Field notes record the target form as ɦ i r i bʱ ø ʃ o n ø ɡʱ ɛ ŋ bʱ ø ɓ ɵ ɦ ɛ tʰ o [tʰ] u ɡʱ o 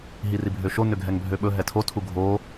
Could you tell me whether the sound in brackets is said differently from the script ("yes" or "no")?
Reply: no